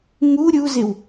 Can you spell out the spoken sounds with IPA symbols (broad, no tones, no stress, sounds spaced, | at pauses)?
ŋ u ɾʲ u z ɪ w